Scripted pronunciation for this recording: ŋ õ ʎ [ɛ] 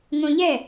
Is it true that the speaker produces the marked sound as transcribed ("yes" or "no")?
yes